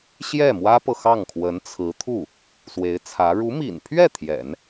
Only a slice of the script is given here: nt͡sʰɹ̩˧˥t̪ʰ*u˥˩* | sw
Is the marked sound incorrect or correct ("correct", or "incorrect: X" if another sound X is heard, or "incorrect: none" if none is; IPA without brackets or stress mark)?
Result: correct